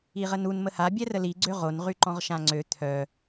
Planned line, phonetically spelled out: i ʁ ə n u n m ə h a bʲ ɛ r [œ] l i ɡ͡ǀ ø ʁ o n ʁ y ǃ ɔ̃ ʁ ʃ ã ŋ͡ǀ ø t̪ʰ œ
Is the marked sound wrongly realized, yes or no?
yes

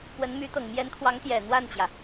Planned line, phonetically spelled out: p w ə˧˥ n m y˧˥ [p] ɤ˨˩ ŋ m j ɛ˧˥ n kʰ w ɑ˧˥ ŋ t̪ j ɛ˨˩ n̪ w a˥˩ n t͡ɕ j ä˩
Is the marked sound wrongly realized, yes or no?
yes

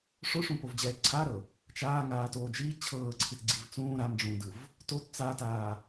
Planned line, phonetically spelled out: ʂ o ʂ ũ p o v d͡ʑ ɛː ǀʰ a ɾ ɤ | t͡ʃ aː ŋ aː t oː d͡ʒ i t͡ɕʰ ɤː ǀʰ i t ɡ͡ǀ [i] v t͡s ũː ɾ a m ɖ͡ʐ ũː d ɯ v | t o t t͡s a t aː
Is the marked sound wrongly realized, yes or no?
no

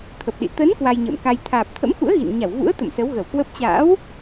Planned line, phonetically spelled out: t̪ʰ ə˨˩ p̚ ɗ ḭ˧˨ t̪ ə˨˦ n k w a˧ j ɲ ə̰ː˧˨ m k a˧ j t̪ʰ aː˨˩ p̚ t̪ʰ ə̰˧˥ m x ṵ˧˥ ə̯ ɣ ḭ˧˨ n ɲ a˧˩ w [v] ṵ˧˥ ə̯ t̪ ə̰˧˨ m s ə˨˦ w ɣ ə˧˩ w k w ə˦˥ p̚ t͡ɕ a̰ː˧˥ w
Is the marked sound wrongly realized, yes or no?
no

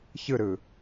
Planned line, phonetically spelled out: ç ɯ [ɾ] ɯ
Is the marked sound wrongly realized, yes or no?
no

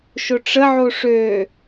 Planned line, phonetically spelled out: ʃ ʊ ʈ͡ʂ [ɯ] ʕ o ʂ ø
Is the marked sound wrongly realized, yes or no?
yes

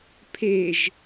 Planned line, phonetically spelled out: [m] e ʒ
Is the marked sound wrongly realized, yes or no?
yes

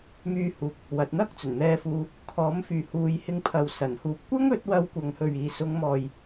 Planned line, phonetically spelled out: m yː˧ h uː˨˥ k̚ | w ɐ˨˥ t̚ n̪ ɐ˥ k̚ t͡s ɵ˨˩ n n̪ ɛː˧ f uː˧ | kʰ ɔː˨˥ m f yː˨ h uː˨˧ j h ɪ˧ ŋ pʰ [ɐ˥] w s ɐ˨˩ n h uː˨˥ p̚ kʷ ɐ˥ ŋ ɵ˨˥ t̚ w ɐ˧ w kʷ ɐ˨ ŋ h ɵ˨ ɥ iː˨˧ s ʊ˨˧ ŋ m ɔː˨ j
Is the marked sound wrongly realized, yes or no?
yes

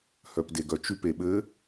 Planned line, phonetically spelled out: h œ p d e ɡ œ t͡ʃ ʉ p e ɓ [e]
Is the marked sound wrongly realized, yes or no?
yes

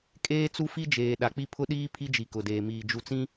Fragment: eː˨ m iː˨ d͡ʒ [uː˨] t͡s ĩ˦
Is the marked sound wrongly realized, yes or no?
yes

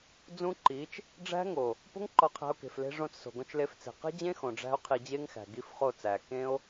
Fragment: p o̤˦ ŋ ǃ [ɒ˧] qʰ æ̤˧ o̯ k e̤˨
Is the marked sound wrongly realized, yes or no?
no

